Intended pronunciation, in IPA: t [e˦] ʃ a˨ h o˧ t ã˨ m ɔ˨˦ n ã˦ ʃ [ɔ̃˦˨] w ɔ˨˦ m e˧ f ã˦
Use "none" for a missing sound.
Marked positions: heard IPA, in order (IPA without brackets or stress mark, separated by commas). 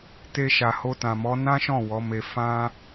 e˧, ɔ̃˦˨